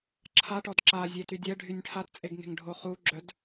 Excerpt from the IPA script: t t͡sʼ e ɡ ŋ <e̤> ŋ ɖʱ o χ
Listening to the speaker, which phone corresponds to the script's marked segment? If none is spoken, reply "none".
e̤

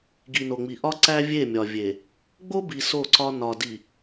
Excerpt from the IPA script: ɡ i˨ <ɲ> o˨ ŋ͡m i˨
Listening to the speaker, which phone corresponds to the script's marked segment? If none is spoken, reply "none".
n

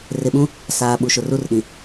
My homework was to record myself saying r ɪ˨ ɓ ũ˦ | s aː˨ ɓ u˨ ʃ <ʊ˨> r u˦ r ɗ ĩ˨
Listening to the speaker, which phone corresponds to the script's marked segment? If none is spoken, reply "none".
ʊ˨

